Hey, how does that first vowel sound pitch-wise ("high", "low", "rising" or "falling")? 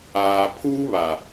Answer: low